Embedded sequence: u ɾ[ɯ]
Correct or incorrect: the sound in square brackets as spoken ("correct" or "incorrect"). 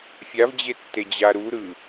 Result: correct